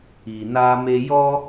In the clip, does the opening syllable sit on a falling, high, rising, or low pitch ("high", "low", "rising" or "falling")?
low